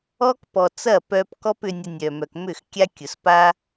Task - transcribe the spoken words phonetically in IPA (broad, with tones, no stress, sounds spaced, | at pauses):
ɔ˦ k p ɔ˨ t͡s ɐ˦˨ p œ˧ p k ɔ˦ p ʏ˧ nʲ ɐ˧ nʲ œ˨ m œ˨ k m ʏ˦˨ x kʲ a˦ kʲ ʊ˨ s p a˦